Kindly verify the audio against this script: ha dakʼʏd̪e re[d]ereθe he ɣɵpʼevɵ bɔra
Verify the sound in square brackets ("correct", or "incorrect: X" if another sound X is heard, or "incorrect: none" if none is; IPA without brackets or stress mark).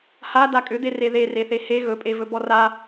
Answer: incorrect: ð